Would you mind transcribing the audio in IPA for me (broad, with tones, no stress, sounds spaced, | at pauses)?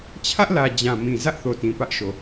t͡ɕʰ ä˦ ʔ l ä˨ d͡ʑ ã˨ m ĩ˨ z ä˦ ʔ θ o˨ t ĩ˨ p ä˦ ʔ ʃ o˨